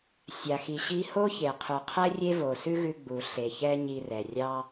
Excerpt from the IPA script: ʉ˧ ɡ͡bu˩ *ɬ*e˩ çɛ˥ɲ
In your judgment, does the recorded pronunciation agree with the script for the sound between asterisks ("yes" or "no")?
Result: yes